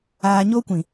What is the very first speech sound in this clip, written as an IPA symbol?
aː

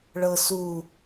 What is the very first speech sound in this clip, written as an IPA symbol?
ɭ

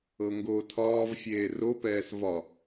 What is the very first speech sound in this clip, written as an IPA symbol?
ɤ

